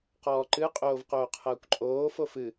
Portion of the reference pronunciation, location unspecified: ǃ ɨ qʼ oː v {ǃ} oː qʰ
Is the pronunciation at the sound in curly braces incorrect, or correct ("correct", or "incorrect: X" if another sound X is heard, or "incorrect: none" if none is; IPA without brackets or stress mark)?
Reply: incorrect: q